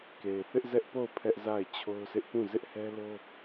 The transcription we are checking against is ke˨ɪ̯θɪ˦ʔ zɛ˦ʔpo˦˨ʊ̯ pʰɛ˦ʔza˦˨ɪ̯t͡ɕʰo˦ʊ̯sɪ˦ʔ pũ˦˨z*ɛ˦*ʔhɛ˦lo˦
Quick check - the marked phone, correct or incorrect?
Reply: incorrect